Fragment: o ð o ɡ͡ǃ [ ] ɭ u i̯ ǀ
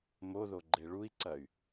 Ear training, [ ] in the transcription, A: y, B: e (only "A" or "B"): B